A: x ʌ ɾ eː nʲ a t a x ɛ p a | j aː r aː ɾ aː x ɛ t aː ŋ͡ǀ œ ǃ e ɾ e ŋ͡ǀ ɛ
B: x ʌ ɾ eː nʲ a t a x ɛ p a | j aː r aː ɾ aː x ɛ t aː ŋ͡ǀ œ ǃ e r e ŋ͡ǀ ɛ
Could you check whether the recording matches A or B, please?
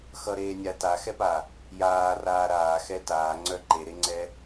A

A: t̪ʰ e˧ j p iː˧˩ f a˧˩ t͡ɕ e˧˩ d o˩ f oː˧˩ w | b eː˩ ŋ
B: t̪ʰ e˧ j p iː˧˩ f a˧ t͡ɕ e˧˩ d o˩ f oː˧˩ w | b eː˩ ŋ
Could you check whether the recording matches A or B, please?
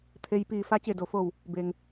B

